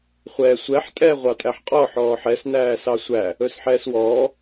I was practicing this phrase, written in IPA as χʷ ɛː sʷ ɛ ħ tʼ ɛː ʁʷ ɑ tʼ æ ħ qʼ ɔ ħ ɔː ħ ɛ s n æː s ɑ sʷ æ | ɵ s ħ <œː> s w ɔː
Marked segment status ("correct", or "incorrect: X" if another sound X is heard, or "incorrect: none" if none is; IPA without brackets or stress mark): incorrect: ɛː